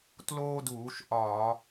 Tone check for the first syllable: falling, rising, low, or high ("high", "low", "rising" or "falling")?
high